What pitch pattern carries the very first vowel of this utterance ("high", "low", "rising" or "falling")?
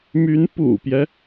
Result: rising